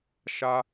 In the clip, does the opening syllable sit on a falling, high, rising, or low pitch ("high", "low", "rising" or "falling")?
high